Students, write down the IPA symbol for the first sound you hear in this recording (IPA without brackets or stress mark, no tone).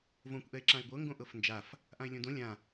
v